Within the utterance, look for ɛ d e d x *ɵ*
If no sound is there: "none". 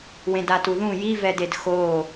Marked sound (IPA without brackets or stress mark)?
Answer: o